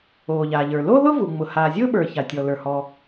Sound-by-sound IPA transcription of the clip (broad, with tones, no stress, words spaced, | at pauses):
oː˩ ʎaː˩ʎə˞˩ lo˥ðʊː˥vu˩ ŋ͡mʊ˩ haː˩zʲʊː˥ɓə˞˩ ça˩tʲɔ˩lə˞˩ hɔ˩